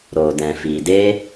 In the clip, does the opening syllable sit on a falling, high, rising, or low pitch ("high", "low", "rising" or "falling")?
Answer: low